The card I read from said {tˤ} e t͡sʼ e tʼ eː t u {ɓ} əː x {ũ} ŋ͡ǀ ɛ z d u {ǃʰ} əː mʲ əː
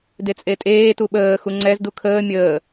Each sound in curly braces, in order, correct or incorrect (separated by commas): incorrect, correct, incorrect, incorrect